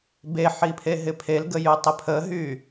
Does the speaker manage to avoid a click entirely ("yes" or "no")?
yes